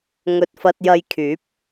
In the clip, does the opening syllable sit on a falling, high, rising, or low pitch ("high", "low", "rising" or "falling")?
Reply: low